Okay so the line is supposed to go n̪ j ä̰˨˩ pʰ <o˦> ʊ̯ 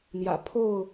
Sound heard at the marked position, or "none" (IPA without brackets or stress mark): o˥˨